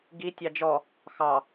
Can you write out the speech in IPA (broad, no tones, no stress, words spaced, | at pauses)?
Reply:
ɡi tʲɑd͡ʒɔ | xɑ